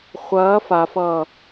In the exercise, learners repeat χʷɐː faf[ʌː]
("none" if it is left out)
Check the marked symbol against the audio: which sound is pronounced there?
ʌː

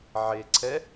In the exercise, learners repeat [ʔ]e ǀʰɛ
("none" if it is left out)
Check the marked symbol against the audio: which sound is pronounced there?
ʕ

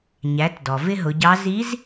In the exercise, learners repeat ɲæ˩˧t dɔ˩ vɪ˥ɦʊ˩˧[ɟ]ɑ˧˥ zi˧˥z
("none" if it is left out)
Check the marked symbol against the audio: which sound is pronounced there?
ɟ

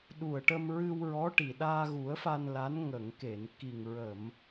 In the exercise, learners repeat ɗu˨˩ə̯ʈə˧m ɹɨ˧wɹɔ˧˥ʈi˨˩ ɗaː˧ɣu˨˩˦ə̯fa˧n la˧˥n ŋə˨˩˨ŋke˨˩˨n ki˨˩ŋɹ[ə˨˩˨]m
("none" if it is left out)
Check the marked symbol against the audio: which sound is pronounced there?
ə˨˩˨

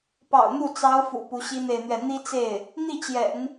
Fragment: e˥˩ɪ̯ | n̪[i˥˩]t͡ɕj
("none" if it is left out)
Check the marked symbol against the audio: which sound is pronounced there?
i˥˩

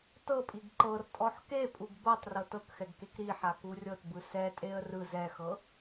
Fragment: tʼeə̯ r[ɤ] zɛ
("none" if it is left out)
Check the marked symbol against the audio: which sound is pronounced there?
ɯ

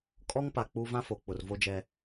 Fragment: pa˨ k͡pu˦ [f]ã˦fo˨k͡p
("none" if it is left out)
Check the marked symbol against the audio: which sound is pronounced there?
v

